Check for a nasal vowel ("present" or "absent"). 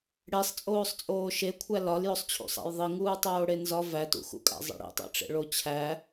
absent